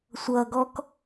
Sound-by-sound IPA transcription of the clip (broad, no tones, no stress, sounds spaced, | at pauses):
sʷ ʌ ɡ ɔ k